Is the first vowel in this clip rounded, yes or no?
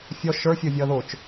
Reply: yes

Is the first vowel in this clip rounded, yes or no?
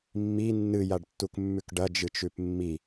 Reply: no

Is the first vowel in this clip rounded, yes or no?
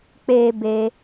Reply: no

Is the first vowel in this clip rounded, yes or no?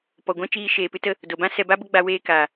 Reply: yes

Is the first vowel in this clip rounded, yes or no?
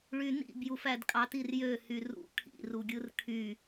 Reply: yes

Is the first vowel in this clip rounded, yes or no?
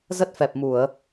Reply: no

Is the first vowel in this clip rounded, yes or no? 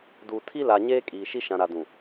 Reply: yes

